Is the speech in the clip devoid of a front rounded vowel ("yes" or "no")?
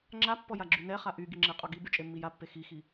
no